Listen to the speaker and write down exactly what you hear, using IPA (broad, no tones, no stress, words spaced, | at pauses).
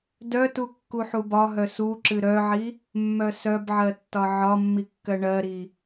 dœtu kːuħubɒɦœ suǁɨ ɾœʕi | mːœsœbʕɜ tːɒʕɒmːi kːɜɳɜɾi